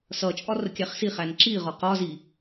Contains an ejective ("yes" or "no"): yes